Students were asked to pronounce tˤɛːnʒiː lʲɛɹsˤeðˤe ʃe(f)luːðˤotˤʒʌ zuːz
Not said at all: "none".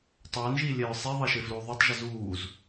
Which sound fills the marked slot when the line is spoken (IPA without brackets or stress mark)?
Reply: f